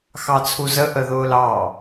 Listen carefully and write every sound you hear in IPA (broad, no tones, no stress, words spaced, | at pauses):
xɑt͡sʰuzə ʔəðʊːlɑ